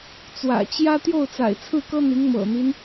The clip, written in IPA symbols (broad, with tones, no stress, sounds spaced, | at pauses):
t͡s w ä̰˨˩ t͡ɕ j ä˥ t̪ j o˥˩ ʊ̯ t͡s a̰˨˩ ɪ̯ t͡sʰ ɹ̩˥˩ k ɤ˥ n̪ i˧˥ ŋ m ɤ̰˨˩ n̪ i˦ n